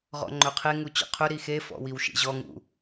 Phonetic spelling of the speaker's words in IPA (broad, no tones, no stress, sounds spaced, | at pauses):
ʁ ɔ̰ ŋ͡ǃ ɵ qʰ e ŋ u t͡ɕ ɔ̰ qʰ ɵ ɾ i x e f ɔ̰ w i w ʃ ḭ ʑ ɔ ŋ ṵ